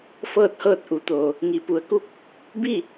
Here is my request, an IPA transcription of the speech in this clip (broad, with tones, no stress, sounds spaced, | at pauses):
f ɤː˥˨ t̚ h ɤː˥˨ t̚ ʔ u˩˧ t̪ oː˩ | ŋ i˩ p u˩ ə̯ k u˥˨ k̚ | b i˥˨